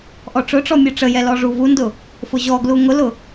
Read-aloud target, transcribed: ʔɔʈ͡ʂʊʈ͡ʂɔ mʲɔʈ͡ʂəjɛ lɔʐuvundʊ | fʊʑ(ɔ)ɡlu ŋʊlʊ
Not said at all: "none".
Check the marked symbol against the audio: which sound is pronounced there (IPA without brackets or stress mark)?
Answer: ɔ